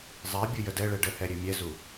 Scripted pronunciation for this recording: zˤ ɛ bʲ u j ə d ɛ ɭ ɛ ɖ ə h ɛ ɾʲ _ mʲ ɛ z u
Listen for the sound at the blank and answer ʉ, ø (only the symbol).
ʉ